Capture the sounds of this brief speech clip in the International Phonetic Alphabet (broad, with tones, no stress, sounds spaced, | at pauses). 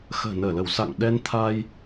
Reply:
x ə̤ː˨˩ n əː˧˩ l ə˧˩ w s a̰˧˨ ŋ ɗ ɛ˧ n t̪ʰ a˧ j